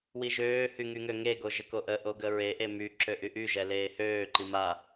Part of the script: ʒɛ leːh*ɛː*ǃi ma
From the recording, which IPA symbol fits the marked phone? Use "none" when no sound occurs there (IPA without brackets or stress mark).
øː